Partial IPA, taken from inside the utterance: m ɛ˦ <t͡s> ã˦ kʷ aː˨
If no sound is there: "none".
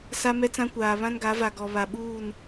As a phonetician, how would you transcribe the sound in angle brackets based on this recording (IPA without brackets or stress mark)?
t͡s